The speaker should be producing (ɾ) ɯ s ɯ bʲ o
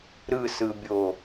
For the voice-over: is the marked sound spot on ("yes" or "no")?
yes